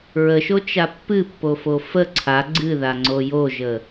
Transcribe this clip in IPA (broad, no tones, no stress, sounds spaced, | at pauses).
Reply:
ɹ ə ʃ o t͡ʃ a pː ɨ pː o f o f ə ǀʰ a ɡ͡ǀ ɨ ð a ŋ͡ǀ o j o ʒ ə